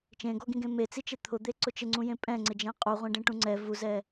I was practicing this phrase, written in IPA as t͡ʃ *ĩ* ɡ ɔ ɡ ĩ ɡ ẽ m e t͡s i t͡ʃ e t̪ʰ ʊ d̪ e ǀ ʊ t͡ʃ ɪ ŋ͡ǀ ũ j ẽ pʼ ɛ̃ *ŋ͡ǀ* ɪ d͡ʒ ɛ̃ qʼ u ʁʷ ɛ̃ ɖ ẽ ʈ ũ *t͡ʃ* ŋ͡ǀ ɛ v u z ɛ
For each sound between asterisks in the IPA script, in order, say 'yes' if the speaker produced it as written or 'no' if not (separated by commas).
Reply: no, yes, no